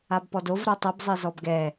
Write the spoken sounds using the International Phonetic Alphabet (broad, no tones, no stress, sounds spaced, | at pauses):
a b p ɔ d o v ɾ o tˤ ɯ b zˤ i z ɔ b ɡ ɛ